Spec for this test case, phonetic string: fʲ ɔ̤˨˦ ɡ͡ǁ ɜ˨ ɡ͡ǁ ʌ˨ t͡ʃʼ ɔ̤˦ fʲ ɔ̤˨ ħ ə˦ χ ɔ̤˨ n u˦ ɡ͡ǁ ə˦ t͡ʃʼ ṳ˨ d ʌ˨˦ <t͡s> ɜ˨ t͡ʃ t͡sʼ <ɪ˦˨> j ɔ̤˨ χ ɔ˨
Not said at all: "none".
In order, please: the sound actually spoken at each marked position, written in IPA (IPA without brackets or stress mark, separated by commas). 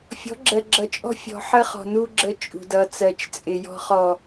t͡s, ɪ˨